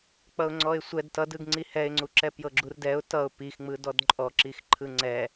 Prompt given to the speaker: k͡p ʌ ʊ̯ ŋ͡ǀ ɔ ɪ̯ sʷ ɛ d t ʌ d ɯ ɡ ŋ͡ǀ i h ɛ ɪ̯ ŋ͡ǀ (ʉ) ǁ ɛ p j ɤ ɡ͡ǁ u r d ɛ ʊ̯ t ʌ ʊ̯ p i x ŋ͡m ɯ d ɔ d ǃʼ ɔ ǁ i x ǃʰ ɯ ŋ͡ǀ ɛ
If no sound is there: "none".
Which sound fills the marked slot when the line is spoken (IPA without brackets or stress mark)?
u